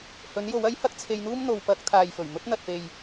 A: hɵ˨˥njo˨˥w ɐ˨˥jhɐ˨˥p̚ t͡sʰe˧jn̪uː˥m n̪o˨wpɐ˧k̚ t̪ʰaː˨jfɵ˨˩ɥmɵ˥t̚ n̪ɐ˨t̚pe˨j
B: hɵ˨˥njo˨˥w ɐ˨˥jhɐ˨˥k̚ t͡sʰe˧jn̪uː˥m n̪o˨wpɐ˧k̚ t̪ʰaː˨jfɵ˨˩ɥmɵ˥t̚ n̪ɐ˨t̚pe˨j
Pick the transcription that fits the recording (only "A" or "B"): B